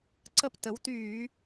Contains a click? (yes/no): yes